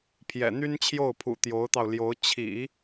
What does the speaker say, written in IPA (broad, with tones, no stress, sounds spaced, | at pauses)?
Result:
pʰ j ɛ̰˨˩ n̪ y˥ n t͡ɕʰ j o˥˩ ʊ̯ pʰ ṵ˨˩ t̪ j o˧˥ ʊ̯ t̪ ɑ˧ ʊ̯ l j o˧˥ ʊ̯ t͡ɕʰ ḭ˨˩˦